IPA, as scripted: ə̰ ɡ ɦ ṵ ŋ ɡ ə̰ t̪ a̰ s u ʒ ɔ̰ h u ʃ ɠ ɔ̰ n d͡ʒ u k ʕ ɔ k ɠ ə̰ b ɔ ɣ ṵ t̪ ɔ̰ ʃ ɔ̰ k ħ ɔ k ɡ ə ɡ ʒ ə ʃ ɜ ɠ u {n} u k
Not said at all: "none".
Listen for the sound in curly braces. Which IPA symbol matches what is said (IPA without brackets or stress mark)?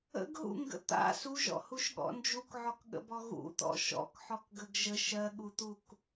t̪